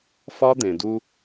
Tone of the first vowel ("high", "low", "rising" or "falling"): high